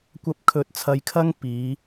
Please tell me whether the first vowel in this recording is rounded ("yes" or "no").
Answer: no